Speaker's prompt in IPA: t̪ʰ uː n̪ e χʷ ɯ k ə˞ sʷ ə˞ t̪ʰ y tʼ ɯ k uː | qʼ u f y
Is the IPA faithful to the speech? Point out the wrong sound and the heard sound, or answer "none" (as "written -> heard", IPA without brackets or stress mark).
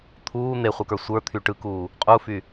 tʼ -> ʈ